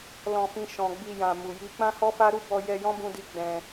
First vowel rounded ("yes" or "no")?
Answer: yes